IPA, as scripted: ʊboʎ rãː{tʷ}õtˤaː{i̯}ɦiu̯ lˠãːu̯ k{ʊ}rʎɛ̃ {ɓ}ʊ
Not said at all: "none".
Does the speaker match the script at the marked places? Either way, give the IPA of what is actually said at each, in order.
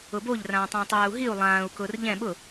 tˤ, u̯, ʊː, ɓ

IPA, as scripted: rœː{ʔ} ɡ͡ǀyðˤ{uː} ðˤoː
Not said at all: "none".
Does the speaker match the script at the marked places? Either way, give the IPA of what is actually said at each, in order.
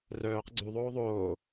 q, oː

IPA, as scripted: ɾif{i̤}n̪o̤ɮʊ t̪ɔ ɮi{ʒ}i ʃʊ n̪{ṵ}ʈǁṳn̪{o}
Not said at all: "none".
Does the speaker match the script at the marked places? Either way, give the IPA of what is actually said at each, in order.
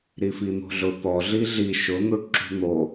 i, ɮ, u, o

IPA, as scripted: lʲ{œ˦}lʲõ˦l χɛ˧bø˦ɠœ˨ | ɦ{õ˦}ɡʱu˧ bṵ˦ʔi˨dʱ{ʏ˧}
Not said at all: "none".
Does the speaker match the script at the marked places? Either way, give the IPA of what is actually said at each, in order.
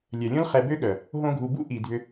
œ˨, õ˦, ʏ˧

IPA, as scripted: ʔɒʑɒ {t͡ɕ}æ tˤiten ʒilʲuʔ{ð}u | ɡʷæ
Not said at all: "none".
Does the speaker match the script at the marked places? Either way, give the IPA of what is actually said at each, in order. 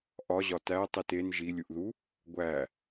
t, ð

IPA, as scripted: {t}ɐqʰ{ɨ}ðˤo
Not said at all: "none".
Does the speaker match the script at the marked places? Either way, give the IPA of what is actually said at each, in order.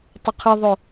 tˤ, ɨ

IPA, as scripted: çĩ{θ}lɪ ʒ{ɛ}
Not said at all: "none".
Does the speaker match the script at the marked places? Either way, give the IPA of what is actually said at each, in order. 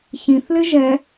θ, ɛ

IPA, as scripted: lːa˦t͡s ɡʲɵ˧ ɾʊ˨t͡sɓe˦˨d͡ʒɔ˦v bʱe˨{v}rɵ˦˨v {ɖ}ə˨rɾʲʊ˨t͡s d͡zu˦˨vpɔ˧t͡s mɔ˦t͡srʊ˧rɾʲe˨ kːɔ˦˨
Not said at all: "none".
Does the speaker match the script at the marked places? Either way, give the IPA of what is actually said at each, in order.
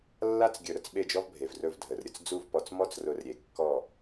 v, dʱ

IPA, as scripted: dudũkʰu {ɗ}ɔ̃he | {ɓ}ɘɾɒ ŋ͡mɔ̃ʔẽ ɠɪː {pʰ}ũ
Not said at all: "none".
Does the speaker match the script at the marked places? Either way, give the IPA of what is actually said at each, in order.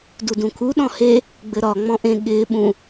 ɗ, ɡ͡b, ɓ

